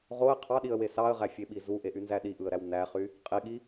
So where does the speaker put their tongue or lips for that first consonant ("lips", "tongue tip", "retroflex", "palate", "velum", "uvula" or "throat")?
uvula